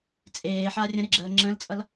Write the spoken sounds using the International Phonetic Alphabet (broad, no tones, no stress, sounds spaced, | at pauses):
t͡sʼ eː ħ a rʲ ə̃ ɾ ɪ ɡ͡ǁ əː ŋ͡ǁ ə̃ l t͡sʼ ʌ l